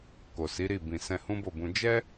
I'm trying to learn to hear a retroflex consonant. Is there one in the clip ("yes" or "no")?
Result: no